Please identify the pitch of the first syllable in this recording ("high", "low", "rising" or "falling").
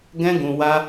high